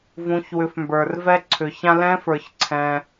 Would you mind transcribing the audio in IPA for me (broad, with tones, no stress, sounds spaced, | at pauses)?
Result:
v ũ˩˧ ç w ʏ˩˧ f m b ə˞˩ r v ɛ˧ ǀʰ ʏ˩ ç ã˧ l ɛ̃˧˥ f ə˞˩ ç ǀʰ ɛ̃˩